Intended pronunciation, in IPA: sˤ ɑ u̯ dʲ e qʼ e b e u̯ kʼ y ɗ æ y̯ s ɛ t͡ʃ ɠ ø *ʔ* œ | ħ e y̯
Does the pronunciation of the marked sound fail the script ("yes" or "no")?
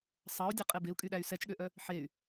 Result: no